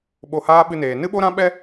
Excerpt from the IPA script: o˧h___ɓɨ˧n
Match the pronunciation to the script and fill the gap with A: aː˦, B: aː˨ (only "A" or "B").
A